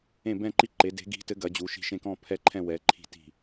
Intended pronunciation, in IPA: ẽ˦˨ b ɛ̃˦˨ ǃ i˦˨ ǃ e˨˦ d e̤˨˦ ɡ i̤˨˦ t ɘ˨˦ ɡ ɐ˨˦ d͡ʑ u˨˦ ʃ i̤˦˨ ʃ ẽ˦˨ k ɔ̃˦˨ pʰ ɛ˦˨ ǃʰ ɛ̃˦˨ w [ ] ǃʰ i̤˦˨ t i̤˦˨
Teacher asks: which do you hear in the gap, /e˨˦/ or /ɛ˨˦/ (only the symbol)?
ɛ˨˦